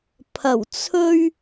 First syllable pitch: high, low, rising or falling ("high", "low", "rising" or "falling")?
low